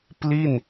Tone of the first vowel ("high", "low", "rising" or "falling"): falling